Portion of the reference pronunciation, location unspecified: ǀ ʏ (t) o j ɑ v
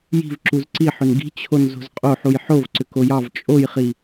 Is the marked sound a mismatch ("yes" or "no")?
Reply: yes